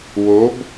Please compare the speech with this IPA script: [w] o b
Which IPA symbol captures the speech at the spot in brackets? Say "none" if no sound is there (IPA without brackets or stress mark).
w